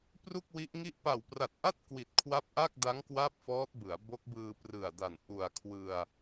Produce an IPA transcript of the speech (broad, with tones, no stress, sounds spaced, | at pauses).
p r u˥˩ k̚ w i˦˥ ʔ ŋ i˥˩ ʔ p a˨˩ w p r a˨˩ t̚ ʔ a˥˩ t̚ k w i˨˩ t̚ kʰ w a˥˩ p̚ ʔ a˥˩ k̚ d a˦˥ ŋ k w a˥˩ p̚ f ɔː˦˥ t̚ b ɯ˩˦ a̯ b o˦˥ k̚ b ɯː˧ p r ɯ˨˩ a̯ d a˨˩ n ʔ u˨˩ a̯ kʰ w ɯ˧ a̯